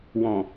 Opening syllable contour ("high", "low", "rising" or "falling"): low